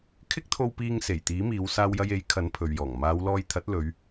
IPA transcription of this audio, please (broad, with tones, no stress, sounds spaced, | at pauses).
kʰ ɪ˥ k̚ t̪ʰ o˧ w p iː˧ ŋ s e˨˩ j t̪ iː˨˥ m iː˨˧ w s aː˧ w j ɐ˧ j e˨˥ j kʰ ɐ˨˥ n pʰ ɵ˨ ɥ j ɔː˨˩ ŋ m aː˨˧ w l ɔː˧ j t̪ʰ ɐ˨˥ t̚ l ɵ˨˧ ɥ